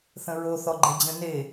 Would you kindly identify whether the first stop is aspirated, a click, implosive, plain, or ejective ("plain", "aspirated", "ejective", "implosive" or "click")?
click